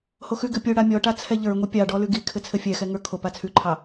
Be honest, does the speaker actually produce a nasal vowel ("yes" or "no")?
no